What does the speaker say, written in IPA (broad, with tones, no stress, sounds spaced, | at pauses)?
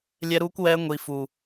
lʲ ɛ˦ ɾ uː˦ kʷ w ɛː˦ ŋʷ i˦ f u˦